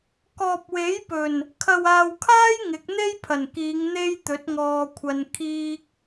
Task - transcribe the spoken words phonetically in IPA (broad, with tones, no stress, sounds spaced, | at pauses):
k ɔː˨ p̚ w e˨˥ j p ɵ˨˩ n | kʰ ɐ˨ w aː˨ w kʰ aː˥ j ŋ ɪ˨˥ k̚ n̪ e˥ j pʰ ɐ˨˩ n k iː˨˧ ŋ n̪ e˥ j t̪ ɵ˨˥ t̚ ŋ ɔː˧ kʷʰ ɐ˧ n kʰ iː˥ k̚